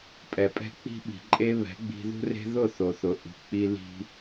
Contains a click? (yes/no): yes